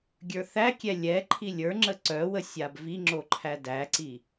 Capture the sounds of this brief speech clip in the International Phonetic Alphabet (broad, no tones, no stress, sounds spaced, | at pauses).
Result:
ɡʲ ə˞ θ æ kʲ ɛ lʲ ɛ ǃʰ i lʲ ə˞ ŋ͡ǁ ə ǀ œ w ə sʲ a b v i ŋ͡ǁ o ǃʰ æ d æ ǀ i